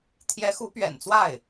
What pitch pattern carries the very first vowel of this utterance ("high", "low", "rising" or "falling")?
rising